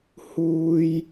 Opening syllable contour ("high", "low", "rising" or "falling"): high